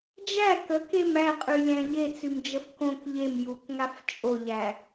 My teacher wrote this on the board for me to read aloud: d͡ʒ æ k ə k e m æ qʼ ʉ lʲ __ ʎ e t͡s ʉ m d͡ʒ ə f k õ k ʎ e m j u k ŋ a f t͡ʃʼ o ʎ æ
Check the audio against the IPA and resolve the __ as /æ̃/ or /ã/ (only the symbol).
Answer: æ̃